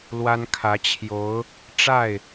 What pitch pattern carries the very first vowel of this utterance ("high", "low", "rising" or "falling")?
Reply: high